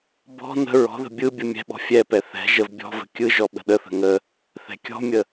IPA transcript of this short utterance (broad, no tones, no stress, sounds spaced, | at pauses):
b ɔ̤ n ə̤ ɹ ɔ̤ ð ə̤ bʲ ɯ bʲ ɯ mʲ ɛ̤ ɓ ɔ̤ fʲ ɛ p ɛ θ ɛ̤ ʒ ə v bʲ ɔ̤ v ə̤ kʲ ɯ ʒ ɔ ɓ ə̤ ɗ ə θ ə̤ ŋ ə | θ ɛ̤ kʲ ɔ̤ mʲ ə